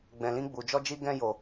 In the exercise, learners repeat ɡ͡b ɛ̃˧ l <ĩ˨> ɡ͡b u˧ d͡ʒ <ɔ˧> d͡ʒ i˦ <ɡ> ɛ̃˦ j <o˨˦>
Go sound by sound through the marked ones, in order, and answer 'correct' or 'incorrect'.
incorrect: ĩ˦, incorrect: ɔ˦, correct, incorrect: o˧

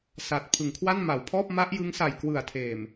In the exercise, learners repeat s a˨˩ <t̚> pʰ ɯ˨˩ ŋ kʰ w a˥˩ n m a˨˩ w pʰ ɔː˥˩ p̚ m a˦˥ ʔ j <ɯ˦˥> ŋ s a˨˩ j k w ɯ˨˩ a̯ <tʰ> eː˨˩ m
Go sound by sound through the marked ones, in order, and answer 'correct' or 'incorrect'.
correct, correct, correct

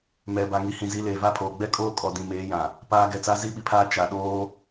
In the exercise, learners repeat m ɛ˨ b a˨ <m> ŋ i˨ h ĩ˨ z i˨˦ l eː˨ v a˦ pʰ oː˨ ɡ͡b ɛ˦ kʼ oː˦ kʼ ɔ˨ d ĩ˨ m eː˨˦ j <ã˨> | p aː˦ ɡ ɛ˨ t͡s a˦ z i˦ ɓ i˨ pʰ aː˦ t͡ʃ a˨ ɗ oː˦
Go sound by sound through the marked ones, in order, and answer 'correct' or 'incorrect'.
incorrect: none, correct

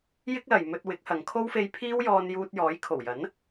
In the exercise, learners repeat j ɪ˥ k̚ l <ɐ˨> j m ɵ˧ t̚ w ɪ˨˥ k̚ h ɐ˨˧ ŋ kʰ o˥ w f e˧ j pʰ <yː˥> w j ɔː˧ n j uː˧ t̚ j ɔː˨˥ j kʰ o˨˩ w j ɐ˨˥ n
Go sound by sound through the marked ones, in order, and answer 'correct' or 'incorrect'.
correct, incorrect: iː˥

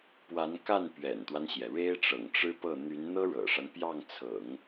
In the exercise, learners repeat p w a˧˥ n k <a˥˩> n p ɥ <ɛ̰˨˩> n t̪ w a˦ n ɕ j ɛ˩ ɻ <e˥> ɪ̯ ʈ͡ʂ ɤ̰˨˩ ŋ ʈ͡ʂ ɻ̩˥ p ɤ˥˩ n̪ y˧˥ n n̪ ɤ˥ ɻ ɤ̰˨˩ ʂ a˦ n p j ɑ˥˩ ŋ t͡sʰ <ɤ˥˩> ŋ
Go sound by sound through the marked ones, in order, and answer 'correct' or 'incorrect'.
correct, correct, correct, incorrect: ɤ̰˨˩˦

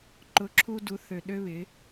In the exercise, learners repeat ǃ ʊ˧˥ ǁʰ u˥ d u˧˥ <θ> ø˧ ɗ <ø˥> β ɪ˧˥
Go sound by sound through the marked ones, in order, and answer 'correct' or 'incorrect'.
correct, correct

